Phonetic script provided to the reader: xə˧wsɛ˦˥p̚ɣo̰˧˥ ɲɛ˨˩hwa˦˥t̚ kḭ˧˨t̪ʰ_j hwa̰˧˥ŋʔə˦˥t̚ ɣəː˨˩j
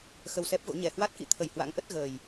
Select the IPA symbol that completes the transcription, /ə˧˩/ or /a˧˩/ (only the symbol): ə˧˩